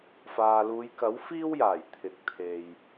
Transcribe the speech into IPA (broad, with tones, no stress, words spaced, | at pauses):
faː˨luː˨˧jkɐ˨˥w fiː˥wjaː˨˩j t̪ʰɪ˨k̚t̪ʰe˨j